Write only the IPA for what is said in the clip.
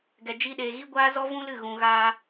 ɡ ɛ˨ d͡ʒ i˧ ɗ eː˨ ɣ i˦ ɡʷ aː˦ z ɔ˦ v ũ˦ l ɨ˦˨ ɣ ũ˨ ɣ aː˧

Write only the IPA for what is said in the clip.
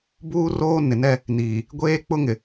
b uː˦ r oː˦ n ɪ˨ n ɛ˦ | n iː˨ | ɡʷ eː˦ k͡p ʊ˦ ŋ ɪ˨

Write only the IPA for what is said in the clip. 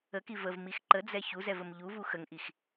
ə k i v ə v m i x ǃ ə d͡z ɛ ç u z ɛ v ə m ʎ u v u x ə ŋ ʔ i x

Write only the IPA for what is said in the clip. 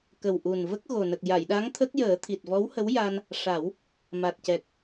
k ə˨˩ w ʔ u˨˩ n v ə˦˥ k̚ ɣ o˨˩ n ə˨˩ k̚ j a˨˩˨ j ɗ a˧˥ ŋ t̪ʰ ə˦˥ k̚ j əː˨˩˦ t̪ʰ i˨˩ t̚ v ɔ˧˥ w h ə˧˥ w j a˧ n | ʂ a˨˩˦ w | m a˨˩ t̚ c ɛ˨˩ k̚

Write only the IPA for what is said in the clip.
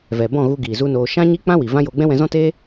v ɛ˨ b ɔ̃˦˨ ɣ u˧ ɡ iː˨ z u˦ n oː˧ ʃ ã˦ ɲ i˦ k͡p ã˦ w i˨ v ã˦ j o˧ ɡ͡b ɛ̃˦ w ɛ̃˧ z ɔ̃˦ t eː˦

